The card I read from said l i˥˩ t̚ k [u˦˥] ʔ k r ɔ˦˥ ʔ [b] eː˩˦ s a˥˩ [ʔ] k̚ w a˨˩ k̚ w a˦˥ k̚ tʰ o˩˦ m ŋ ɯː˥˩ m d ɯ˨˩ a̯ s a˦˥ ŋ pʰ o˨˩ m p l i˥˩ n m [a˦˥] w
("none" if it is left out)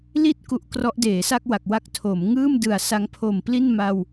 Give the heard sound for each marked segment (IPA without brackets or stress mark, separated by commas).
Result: u˦˥, d, none, a˧